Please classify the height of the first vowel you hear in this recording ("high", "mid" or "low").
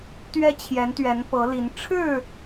mid